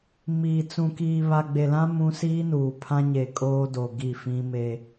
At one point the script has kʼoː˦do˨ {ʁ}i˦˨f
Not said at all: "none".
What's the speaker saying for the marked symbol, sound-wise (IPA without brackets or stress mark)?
ɡ